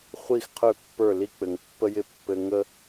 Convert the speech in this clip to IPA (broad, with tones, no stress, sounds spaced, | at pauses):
χʷ i˦˨ x qʰ ø˦˨ pː ə˞˦˨ l i˦ k͡p ɘ˨ ŋ pː ə˦ j ɪ˦ pː ɘ˧ ŋ ə˦